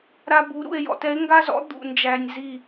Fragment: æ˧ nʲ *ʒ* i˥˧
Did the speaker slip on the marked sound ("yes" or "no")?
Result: yes